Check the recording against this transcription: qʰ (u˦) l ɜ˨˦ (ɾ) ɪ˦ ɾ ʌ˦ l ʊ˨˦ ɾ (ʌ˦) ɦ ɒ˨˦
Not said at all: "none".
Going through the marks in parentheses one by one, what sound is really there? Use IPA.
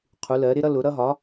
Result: u˨˦, ɾ, ʌ˦

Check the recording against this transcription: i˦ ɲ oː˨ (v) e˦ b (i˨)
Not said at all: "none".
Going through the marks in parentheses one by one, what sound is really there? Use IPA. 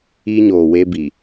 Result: w, i˨

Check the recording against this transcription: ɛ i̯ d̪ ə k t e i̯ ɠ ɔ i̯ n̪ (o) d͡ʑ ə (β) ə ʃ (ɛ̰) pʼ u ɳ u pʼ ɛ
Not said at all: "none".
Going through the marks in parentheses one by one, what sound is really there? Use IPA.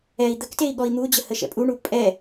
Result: u, h, ɛ̰

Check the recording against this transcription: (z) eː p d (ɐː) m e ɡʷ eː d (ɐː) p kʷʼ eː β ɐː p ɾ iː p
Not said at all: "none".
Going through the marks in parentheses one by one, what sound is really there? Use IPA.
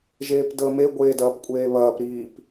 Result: ʒ, əː, ɐː

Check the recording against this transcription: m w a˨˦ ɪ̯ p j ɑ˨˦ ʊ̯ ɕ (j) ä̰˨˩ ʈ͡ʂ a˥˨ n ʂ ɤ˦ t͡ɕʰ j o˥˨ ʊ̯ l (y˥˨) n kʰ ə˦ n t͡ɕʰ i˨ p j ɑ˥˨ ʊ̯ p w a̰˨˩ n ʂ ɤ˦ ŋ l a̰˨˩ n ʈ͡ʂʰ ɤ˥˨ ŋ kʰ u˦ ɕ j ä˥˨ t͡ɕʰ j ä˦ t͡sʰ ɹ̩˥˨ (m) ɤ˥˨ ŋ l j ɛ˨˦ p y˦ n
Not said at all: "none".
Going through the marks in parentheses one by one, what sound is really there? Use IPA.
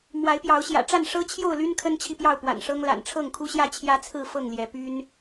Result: j, y˦, f

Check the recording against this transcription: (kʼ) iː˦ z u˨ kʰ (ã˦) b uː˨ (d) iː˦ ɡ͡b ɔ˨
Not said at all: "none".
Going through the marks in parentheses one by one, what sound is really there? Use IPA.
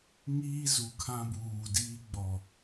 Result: ŋ, ã˦, d

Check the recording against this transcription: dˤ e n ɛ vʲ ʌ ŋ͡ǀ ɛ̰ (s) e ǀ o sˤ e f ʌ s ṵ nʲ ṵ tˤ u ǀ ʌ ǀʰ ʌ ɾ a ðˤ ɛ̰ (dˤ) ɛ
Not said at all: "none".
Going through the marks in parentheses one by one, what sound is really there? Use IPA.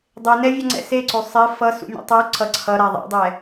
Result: s, dˤ

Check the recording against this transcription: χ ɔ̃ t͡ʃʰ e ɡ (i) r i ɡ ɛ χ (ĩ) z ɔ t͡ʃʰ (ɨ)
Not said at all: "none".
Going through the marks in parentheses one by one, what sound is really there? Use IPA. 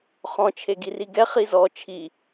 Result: i, i, i

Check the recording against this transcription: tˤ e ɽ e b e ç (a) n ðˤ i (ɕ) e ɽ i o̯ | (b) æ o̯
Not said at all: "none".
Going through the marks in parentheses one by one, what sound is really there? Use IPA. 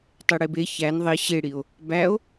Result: æ, ɕ, b

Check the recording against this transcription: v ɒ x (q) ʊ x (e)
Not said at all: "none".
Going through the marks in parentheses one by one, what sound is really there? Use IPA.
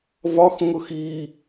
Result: ŋ, i

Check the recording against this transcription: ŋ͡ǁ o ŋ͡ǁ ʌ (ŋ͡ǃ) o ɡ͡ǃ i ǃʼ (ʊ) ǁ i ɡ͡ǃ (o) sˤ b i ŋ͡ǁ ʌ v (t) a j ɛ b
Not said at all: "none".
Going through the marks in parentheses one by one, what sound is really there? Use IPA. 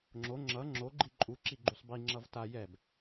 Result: ŋ͡ǁ, u, u, t

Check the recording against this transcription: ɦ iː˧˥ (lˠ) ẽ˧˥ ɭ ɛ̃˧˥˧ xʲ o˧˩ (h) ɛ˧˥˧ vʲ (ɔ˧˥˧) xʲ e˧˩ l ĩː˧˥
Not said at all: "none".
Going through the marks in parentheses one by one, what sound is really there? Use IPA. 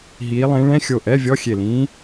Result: lˠ, ʔ, ɔ˧˥˧

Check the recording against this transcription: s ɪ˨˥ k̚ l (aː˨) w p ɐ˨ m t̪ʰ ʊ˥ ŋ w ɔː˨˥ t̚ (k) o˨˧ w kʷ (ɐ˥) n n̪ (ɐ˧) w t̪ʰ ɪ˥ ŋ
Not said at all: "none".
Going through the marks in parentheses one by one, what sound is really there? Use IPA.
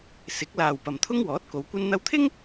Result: aː˨, k, ɐ˥, ɐ˧

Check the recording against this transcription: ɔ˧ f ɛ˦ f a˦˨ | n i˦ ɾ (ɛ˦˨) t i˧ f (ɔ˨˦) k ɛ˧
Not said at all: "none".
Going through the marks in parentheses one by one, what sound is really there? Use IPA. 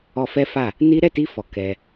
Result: ɛ˦˨, ɔ˨

